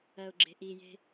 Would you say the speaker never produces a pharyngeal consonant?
yes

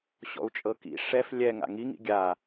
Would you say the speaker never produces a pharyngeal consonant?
yes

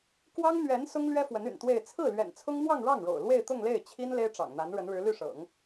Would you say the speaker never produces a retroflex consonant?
no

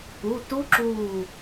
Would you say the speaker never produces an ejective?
yes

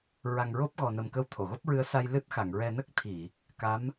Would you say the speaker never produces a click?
yes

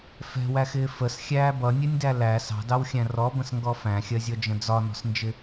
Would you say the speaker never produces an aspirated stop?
yes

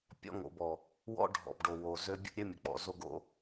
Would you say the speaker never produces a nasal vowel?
yes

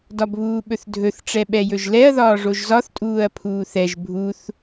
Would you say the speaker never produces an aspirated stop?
no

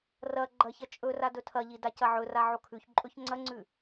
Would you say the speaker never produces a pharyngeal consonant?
no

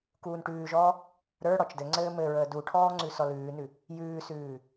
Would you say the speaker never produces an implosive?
yes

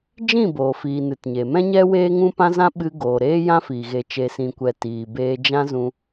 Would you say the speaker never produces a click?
yes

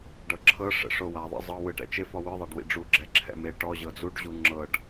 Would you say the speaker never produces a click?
no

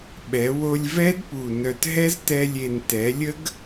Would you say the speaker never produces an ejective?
yes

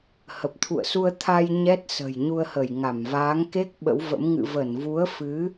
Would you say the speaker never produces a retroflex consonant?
yes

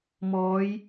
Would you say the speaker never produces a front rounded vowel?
yes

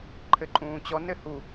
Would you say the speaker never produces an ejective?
no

